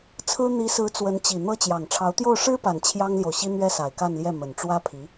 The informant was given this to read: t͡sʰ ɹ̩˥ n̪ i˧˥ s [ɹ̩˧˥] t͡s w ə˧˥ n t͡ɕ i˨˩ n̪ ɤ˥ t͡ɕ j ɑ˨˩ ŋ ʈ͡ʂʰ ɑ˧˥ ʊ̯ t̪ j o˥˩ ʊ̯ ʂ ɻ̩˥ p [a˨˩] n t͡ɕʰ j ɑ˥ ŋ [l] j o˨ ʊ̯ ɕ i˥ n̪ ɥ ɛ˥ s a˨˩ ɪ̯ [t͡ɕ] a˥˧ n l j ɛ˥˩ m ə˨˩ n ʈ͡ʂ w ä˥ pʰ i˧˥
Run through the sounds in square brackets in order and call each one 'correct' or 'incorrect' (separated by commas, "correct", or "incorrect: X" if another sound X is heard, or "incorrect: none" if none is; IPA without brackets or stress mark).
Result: correct, correct, correct, incorrect: k